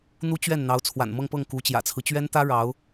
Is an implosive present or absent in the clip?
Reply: absent